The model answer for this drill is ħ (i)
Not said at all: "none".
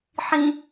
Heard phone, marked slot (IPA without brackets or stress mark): ĩ